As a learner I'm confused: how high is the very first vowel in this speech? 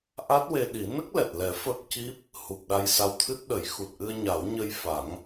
low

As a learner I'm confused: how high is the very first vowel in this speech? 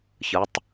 high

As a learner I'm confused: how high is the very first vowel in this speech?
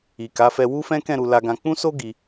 high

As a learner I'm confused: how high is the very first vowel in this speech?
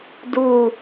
high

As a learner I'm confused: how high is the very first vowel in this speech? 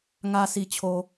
low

